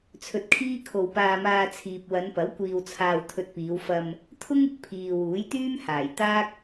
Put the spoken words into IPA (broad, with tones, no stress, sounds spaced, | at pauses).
t͡sʰ ɵ˧ t̚ kʰ iː˥ kʰ o˧ w p aː˧ m aː˧ t͡sʰ iː˨ p̚ w ɐ˨˧ n p ɐ˨˥ w kʷ iː˧ w t͡sʰ aː˧ w t̪ʰ ɵ˧ t̚ p iː˨˧ w f ɐ˧ m | t̪ʰ ʊ˥ ŋ ɪ˨ k̚ pʰ iː˨ w uː˨˥ j t̪ yː˥ m h aː˨˩ j t̪ aː˥ k̚